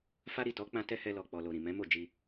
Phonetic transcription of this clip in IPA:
fa˦ ɾi˦˨tɔ˨˦k͡pã˧ tɛ˦hɛ˧lɔ˨k͡pɔ˨ lo˨ɾĩ˨ mɛ̃˨˦mo˦˨ d͡ʒi˧

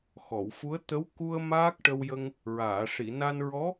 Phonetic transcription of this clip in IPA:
xɔ˨˩˨wfu˧˥ə̯ t̪ə˧˥w ku˧ə̯ maː˦˥k̚ʈə˧wjə˧ŋ | ɹaː˨˩˨ʂi˨˩˨na˧nɹɔ˧˥

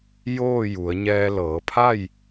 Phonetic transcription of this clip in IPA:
joː˥˨ ju˩˧ə̯ ɲɛː˧lɤː˩˧pʰa˥˨j

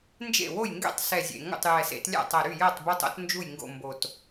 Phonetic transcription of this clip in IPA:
nd͡ʒḛ˥˩wo˥˩j ŋɡɛ̰˥˩tˤsɛ˨˩zʲḛ˨˩ ŋo̰˥˩tˤjɛ˨˩sḛ˦t lʲa̰˥˩tˤɛ˨˩ɾy˥˩ jɜ˥˩tˤbu˦tˤ o̰˦t nd͡ʒu˥˩jŋɡo̰˥˩ mbo˨˩t

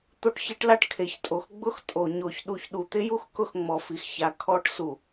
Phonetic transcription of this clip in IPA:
t̪o˦ʈçe˦ʈla˦ʈ kʰe˨çtʼo˨xɡ͡bʊ˦x tʼo˨ ɲo˨çɗu˨ç ɗu˨t̪ɪ˦ju˦x kʊ˦xŋ͡mɔ˨fi˨x ça˨ kʰɔ˦ʈ su˨

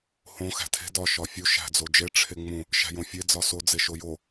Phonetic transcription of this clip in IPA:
hõ xæ̤tʰe̤ dɒ ʃɒfʲu ʃæ̤d͡zod͡ʒe ʈ͡ʂʰeŋ͡mũ | ʃæ̤jõfʲe d͡zɒso d͡zeʃojo

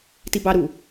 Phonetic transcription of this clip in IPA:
tibɑɾu

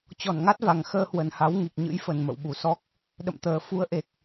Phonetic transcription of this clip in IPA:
t͡ɕɔ˧˩nŋa˦˥t̚va˨˩ŋ xəː˧hwə˨˩nha˨˦w ŋi˨˩k̚ɲɨ̰˧˥jfə˨˩n mə̰˧˨wɓu˨˩sɔ˦˥k̚ | ɗə̰˧˨mt̪əː˨˩ fu˨˦ə̯ʔe˨˩k̚

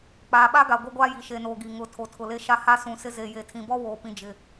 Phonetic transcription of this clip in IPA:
k͡paː˨ɓa˦ɡa˨ ɡʷe˦ɡʷaː˦ji˨ ʃe˨noː˨ ɡi˨ ŋʊ˨˦ tʰo˨tʰʊ˨le˦ʃa˦ ha˦sũ˨sɪ˦ ze˨ je˨tʰĩ˨bɔ˦woː˨ pĩ˨d͡ʒɪ˨

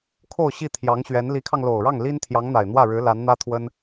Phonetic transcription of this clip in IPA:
kʰo˥˧ʊ̯ɕi˥˩t̪ʰjɑ˧˥ŋɕɥɛ˧˥n li˧˥kʰɑ˧ŋlo˨˩ʊ̯ɻɑ˥˩ŋ li˥n t̪ʰjɑ˧˥ŋn̪a˨˩ɪ̯n̪wä˥˩ɻɻ̩˧˥ la˧˥nn̪ä˥ t̪ʰwə˥n

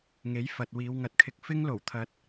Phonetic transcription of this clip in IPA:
ŋe˨˥jfɐ˨t̚ wiː˨˧wŋɐ˨˥t̚kʰɪ˧k̚ fɪ˥ŋlo˨˩wt̪ʰɐ˨˥t̚

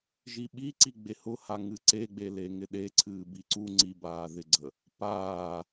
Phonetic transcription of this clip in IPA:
ʒiɓiǀi ɡ͡behʊha ŋɨǀeɡ͡bele ŋɪɗeǀʰɨː biǀu ŋ͡ǀibaːðɪɡ͡ǀə | paː

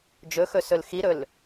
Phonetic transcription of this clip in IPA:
d͡ʒɵxɵ sɵlxiɾɵl

